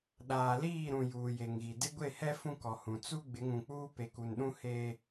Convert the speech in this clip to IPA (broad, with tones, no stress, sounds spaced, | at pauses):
ɗ aː˨ l iː˦˨ ɾ ũ˨ j uː˨ j e˨ ŋ ɣ i˨ d ɪ˦ ɡʷ e˦˨ h ɛ˦ f ũ˦ k ɔ˨ h ũ˨ t͡s u˦ ɡ͡b ɪ˨˦ ŋ ũ˨ k͡p uː˦ p e˨ k u˨ n ɗ ũ˦ h e˦